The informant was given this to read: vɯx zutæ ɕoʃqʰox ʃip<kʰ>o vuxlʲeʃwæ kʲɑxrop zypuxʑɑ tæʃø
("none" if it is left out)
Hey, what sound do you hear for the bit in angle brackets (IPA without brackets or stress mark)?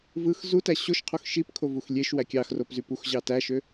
kʰ